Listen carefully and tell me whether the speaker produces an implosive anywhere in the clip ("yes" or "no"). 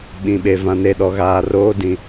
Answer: yes